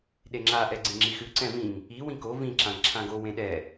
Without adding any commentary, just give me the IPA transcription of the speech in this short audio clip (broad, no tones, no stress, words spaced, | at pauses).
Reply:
ɗeŋ͡ǁa ʔɛɡ͡ǀĩŋ͡ǁixʉ ǀɛ̃vĩŋ | i wĩko vĩ ǁãŋǁʰãɡo wẽɗɛ